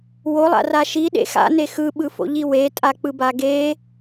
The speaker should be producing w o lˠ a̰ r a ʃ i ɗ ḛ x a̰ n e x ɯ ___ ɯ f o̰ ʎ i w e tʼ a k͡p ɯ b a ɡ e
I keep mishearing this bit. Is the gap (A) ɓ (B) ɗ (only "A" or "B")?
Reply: A